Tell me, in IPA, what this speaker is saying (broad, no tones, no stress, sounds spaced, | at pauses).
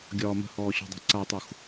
ɡʲ ɒː m ə̤ h ɔː ɕ ɔ̤ dˤ i̤ ǀ a tˤ u x